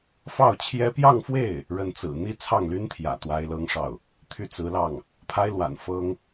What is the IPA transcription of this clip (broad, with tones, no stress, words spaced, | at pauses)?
fɑ˥˩ʊ̯t͡ɕʰjɛ˥ pjɑ˥˧ŋfwe˥˩ɪ̯ | ɻə˥˩nt͡sɹ̩˨˩ n̪i˥t͡sʰɑ˥˩ŋly˥nt̪ʰjä̰˨˩ t̪wa˥ɪ̯lɤ˥ŋʂɑ˥˩ʊ̯ | t̪ʰy˥˩t͡sɹ̩˧˥lɑ˥˩ŋ | pʰa˥ɪ̯lwa̰˨˩n fɤ˥ŋ